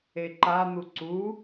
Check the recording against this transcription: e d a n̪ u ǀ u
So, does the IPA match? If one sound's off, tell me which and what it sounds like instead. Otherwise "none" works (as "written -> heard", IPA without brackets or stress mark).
d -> ǃ